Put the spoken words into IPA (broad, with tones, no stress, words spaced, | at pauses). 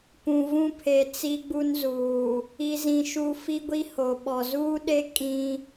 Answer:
pũ˨vũ˦pʰe˨ t͡si˦ɡ͡bu˦nzuː˨ | i˨zĩ˨ʃu˨ fi˦ɡʷi˦ ho˨ɓɔ˨ zuː˦ɗe˦ kʼĩ˦